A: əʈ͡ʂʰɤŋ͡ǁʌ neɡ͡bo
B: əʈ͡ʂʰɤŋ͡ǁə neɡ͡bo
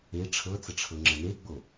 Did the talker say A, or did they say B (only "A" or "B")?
B